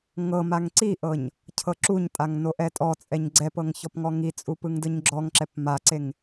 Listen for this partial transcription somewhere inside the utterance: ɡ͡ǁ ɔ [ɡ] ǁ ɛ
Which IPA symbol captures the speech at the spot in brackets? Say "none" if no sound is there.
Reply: ŋ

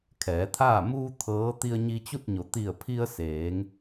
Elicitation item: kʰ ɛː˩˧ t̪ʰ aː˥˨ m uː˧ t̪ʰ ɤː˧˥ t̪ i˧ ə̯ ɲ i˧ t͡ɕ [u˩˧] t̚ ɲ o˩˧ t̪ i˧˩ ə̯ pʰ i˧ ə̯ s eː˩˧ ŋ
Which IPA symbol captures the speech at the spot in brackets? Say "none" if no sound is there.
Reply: u˥˨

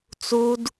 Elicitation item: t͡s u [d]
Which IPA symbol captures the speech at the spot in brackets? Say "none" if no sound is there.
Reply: d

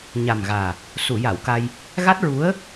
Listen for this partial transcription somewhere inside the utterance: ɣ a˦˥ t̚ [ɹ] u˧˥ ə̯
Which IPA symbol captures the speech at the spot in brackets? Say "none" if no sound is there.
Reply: ɹ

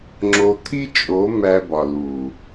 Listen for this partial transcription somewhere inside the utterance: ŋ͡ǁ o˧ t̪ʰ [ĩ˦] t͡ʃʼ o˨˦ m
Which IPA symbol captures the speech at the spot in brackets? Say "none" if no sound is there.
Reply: i˦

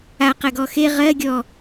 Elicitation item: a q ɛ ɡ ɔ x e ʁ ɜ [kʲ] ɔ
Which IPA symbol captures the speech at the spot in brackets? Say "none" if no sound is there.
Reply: ɡʲ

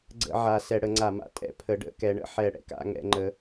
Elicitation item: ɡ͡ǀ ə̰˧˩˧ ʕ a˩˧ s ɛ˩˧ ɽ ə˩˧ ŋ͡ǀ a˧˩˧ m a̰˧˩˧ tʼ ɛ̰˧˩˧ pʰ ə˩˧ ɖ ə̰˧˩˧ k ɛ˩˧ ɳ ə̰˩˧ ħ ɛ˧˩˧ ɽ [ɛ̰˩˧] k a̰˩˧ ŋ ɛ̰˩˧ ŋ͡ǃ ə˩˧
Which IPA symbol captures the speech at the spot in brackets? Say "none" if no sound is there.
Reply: ɛ̰˩˧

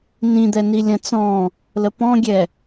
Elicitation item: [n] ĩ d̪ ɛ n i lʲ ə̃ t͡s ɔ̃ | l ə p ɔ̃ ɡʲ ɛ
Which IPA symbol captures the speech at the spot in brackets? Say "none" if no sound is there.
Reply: n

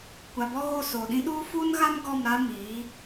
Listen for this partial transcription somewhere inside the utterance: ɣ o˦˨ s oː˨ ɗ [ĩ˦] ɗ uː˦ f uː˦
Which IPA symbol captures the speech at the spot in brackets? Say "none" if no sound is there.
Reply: ĩ˦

